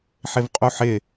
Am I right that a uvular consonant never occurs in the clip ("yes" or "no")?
no